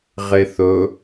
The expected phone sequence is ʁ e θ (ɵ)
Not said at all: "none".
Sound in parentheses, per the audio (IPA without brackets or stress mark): ɵ